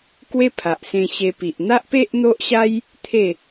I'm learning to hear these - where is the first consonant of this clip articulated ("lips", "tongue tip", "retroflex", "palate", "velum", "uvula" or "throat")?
velum